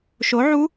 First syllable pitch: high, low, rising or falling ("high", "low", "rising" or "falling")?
rising